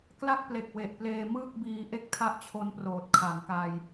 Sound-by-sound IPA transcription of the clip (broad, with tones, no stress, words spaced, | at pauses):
kla˥˩k̚ple˨˩k̚ we˨˩ʔpleː˧ mɯː˥˩k̚biː˧ʔe˥˩k̚tʰa˥˩ʔ t͡ɕʰo˦˥nproː˨˩t̚ kʰa˩˦ŋka˧j